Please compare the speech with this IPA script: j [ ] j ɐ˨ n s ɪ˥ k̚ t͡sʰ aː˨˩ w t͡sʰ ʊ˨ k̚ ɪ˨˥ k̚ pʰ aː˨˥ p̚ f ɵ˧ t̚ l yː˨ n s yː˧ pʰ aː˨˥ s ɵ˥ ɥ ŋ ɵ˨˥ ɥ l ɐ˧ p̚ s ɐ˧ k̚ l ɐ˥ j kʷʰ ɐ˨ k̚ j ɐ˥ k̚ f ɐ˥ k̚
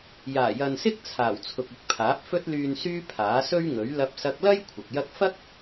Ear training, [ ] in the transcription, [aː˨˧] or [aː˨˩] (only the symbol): aː˨˩